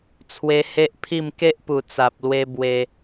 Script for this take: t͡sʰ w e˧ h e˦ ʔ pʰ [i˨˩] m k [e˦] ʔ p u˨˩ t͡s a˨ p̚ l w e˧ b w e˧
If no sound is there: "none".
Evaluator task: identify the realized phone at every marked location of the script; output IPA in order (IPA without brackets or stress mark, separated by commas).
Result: i˥˧, e˦